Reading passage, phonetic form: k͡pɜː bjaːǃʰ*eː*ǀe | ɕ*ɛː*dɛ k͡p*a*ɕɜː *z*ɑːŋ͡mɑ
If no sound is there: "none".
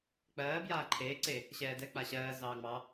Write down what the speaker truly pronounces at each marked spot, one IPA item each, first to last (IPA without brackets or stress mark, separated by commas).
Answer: eː, ɛː, a, z